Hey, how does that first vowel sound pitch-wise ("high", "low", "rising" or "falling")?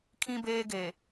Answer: high